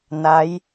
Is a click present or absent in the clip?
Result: absent